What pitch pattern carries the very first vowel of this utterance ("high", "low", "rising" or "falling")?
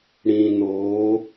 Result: low